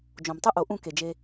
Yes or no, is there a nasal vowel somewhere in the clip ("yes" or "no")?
yes